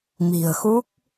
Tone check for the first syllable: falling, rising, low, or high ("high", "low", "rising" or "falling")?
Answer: low